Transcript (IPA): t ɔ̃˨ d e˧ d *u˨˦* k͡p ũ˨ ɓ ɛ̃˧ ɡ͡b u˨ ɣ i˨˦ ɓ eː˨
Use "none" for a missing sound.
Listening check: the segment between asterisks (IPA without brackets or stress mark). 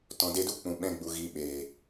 u˦